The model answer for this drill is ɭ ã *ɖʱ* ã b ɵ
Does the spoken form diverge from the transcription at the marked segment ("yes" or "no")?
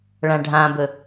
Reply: no